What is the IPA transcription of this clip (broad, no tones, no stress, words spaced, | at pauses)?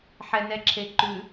ħɛnɛǁʰeǃʉ